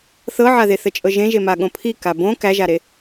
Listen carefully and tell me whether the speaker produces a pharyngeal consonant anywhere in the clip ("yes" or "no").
yes